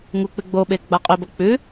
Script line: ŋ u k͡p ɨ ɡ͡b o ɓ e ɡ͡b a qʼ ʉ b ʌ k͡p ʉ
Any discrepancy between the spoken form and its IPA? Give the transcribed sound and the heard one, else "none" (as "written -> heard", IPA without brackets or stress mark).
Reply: none